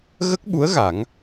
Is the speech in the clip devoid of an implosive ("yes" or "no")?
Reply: no